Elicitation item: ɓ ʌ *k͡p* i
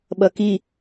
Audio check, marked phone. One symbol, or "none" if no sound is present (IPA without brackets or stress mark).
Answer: k